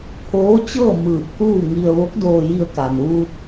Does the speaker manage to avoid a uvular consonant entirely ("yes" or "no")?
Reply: yes